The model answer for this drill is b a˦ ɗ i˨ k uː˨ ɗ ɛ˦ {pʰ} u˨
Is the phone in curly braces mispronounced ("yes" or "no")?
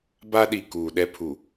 no